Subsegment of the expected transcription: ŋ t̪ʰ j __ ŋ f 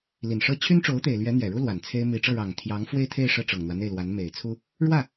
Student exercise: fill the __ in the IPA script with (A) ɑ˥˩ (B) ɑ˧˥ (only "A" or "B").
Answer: B